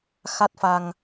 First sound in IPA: x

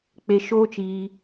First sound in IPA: k͡p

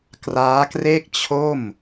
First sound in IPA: k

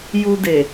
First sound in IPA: j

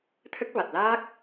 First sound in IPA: t̪ʰ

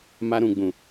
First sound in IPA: m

